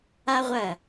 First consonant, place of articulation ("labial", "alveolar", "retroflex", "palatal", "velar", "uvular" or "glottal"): uvular